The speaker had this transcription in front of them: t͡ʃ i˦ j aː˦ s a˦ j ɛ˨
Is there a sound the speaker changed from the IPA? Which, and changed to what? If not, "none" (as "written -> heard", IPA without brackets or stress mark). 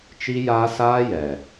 a˦ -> aː˦